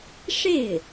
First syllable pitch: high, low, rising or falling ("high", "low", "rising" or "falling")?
falling